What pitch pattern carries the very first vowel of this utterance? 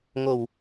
low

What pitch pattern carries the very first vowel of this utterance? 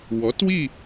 rising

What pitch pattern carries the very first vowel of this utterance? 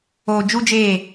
low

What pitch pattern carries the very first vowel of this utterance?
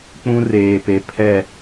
high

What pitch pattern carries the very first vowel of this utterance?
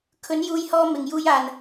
rising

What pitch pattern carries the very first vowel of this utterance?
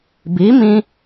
rising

